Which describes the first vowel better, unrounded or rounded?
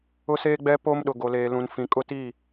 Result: rounded